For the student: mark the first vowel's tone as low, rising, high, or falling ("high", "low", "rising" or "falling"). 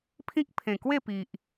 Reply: high